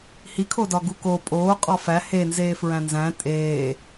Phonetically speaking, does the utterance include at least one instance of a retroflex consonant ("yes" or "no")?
no